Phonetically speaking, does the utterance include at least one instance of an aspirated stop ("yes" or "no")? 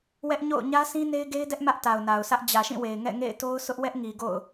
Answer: no